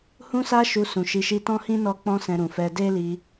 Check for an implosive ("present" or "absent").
absent